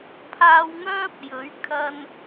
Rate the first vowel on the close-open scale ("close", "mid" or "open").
open